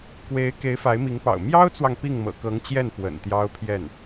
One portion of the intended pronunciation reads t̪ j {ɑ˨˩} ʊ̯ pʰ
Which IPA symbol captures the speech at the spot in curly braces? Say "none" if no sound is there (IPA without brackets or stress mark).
ɑ˥